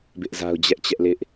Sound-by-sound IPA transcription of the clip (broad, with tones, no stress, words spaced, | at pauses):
bɪ˦ʔza˦ʊ̯ d͡ʑɛ˦ʔt͡ɕɛ˦ʔlɪ˦ʔ